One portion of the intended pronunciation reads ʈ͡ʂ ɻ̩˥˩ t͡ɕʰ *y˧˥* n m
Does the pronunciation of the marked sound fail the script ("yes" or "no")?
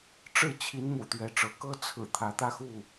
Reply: yes